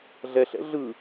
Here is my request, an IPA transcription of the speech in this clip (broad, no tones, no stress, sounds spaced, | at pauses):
ɮ ɛ ɬ ɛ̰ ɮ ɯ